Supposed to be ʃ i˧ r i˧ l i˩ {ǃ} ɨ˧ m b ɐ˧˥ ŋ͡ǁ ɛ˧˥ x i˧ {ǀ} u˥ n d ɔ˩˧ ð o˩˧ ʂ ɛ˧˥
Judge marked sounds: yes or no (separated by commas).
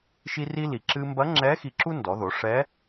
no, no